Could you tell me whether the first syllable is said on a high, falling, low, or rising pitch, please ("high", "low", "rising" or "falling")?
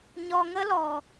low